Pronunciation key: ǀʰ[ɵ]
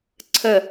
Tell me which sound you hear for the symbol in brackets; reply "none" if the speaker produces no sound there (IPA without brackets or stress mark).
ə